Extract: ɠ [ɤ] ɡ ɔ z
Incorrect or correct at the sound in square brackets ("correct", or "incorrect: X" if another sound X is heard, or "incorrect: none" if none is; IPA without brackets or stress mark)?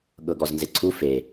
correct